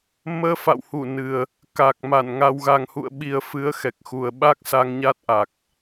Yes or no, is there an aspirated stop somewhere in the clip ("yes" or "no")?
no